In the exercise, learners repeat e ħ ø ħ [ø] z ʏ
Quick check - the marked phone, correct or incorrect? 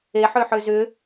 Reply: correct